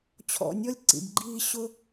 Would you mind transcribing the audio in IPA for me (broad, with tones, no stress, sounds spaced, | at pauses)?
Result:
t͡ɕʰ ɔ̰˧ nʲ ɔ˦ lʲ ǀ ḭ˨ b ɡ͡ǃ iː˧ ɕ ʊ˦